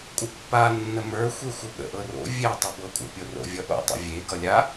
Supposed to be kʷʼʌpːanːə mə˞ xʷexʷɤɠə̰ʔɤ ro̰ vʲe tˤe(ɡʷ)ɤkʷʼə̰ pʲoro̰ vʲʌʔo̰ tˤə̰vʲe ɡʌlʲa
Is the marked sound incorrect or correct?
incorrect